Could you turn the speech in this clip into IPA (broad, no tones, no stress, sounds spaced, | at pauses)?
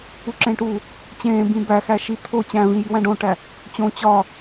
u ǁ ẽ ʈ u | t͡ɕ ẽː b ĩ b æ x æ ʃ i t̪ʰ o t͡ɕ æ̃ v ĩ j i w æ̃ ɖ õ ʈ æ | t͡ɕ õ t͡ɕ ɒ